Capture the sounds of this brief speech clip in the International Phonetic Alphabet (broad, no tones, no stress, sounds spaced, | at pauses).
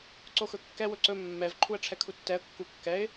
ǀ o x ɵ kː ɛ w ɵ ǀ ɵ mː ɛ v ǃʰ u ə̯ ʈ͡ʂʰ ɛ kʰ u tː ɛ ə̯ kː u kː ɛ ɪ̯